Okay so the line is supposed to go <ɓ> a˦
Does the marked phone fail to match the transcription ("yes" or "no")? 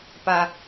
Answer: yes